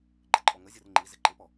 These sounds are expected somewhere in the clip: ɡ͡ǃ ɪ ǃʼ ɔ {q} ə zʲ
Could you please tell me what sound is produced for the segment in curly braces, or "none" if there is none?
ŋ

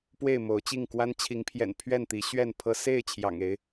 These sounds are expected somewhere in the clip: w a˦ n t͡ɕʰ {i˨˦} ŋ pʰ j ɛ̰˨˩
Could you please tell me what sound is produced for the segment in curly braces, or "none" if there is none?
i˨˦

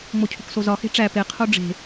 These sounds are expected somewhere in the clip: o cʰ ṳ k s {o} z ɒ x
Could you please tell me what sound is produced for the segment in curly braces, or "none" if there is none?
o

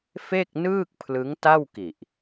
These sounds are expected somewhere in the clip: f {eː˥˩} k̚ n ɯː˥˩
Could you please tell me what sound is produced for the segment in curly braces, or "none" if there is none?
e˥˩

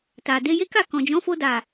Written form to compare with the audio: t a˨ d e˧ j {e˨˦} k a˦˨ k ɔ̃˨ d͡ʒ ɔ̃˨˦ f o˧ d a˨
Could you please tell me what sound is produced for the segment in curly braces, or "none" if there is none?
e˦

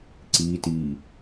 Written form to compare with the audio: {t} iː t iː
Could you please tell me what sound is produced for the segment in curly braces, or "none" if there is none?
ǀ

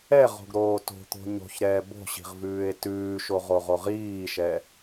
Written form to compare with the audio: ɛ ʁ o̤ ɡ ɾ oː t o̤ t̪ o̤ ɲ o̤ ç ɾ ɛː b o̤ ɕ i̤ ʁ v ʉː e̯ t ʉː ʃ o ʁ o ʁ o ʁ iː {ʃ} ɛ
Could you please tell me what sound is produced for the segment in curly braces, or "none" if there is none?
ʃ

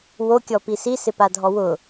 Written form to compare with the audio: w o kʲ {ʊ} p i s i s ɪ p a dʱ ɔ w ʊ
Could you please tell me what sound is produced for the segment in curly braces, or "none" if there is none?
ɔ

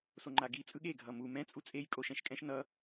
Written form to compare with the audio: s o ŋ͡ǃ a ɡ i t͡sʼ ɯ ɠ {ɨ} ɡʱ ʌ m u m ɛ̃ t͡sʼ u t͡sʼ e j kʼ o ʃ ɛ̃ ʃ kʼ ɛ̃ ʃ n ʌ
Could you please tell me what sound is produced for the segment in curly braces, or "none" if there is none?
e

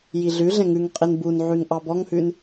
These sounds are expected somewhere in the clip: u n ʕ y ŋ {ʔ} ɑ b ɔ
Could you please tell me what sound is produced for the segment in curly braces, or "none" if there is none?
ʔ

